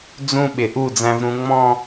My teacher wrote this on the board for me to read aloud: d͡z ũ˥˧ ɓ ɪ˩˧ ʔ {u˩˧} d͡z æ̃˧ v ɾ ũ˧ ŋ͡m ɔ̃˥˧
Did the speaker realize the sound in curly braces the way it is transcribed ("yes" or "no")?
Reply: no